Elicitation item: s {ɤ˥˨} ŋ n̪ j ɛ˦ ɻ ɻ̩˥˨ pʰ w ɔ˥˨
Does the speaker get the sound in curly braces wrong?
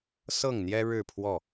no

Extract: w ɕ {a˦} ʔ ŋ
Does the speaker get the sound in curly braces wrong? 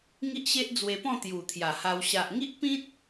yes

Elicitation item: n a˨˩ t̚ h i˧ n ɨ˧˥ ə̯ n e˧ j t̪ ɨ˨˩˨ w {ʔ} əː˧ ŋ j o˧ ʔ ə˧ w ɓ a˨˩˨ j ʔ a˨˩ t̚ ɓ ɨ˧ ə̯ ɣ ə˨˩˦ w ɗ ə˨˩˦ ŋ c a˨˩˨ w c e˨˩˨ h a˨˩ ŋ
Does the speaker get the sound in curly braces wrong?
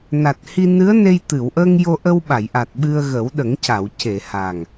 no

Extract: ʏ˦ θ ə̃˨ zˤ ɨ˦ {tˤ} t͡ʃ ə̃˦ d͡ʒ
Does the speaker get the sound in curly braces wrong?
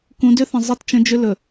yes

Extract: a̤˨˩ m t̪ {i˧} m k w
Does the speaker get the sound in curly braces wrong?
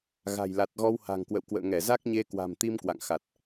no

